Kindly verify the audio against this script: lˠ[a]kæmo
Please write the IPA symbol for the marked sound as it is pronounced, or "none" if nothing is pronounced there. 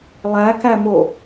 æ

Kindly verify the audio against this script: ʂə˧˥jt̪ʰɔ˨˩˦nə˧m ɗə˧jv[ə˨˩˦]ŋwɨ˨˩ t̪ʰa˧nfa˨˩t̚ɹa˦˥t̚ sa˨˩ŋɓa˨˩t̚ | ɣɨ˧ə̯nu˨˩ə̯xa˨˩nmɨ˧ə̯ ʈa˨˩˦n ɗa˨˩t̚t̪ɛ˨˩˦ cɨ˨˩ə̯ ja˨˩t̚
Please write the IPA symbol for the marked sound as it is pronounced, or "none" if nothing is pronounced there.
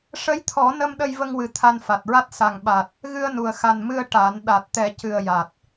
ə˧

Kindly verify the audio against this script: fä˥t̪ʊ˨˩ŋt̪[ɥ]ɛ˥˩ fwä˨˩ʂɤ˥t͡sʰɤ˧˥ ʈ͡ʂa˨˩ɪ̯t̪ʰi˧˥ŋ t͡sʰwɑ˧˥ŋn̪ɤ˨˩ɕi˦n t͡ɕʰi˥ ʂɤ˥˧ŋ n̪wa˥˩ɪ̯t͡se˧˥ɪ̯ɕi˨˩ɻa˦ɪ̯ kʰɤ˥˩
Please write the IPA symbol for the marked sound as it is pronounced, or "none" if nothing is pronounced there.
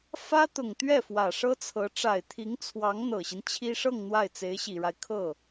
ɥ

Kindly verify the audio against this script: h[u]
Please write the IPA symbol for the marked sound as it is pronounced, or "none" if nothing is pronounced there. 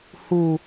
u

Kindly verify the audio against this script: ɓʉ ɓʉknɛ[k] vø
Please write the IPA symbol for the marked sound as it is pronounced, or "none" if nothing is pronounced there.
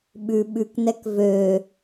k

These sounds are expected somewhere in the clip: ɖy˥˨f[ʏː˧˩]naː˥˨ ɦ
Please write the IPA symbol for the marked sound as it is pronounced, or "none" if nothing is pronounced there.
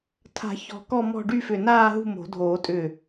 ʏ˧˩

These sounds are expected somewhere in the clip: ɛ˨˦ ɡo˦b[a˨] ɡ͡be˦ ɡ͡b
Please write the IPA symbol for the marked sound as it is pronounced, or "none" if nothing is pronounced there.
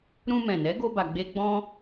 a˧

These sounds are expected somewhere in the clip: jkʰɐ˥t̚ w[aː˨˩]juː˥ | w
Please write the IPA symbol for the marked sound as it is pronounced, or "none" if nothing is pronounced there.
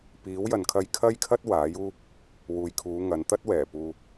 aː˨˥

